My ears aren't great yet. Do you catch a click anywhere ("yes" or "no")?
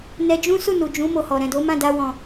no